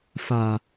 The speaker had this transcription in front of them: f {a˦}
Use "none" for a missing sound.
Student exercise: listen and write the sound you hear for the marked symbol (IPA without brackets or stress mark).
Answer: a˨